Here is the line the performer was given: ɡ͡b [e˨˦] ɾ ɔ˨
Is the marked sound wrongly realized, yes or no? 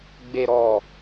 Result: yes